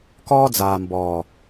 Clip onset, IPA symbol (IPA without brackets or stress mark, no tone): k